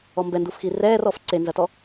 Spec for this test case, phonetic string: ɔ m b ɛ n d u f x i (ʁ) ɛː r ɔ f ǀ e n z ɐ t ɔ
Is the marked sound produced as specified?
no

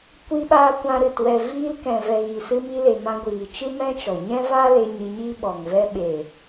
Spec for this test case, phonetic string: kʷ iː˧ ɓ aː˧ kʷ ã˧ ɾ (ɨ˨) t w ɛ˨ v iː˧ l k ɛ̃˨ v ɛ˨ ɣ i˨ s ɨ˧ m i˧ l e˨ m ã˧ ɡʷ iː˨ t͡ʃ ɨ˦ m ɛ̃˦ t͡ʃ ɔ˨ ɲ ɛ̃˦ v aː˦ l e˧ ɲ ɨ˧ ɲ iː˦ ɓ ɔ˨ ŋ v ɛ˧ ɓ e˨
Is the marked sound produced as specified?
yes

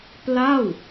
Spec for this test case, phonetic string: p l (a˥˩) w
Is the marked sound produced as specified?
yes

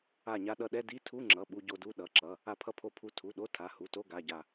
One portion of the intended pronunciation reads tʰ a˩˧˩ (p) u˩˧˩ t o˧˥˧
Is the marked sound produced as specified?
no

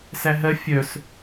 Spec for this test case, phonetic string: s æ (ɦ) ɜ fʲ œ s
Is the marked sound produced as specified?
yes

